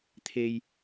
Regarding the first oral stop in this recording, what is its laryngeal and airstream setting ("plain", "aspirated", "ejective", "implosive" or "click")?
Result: aspirated